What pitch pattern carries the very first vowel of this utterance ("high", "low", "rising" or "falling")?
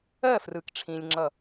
falling